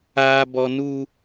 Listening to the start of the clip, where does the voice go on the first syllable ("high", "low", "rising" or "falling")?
high